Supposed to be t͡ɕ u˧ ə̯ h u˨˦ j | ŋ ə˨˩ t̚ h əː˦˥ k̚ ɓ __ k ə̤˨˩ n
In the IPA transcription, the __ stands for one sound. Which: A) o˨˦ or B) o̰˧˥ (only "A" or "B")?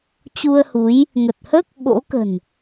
B